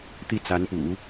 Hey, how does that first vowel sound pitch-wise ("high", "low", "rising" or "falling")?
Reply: falling